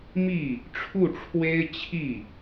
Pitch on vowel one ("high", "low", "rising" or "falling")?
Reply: falling